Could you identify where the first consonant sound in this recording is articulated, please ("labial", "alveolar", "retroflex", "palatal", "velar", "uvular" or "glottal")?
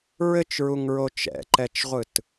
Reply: alveolar